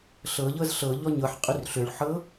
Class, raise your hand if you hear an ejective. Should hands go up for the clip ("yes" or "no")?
yes